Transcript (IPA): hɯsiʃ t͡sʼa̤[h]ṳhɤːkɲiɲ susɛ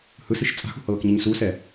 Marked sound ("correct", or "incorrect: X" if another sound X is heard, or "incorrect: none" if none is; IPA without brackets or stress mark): incorrect: x